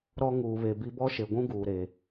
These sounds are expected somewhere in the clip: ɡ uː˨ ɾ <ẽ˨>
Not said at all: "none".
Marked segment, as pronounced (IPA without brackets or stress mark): e˨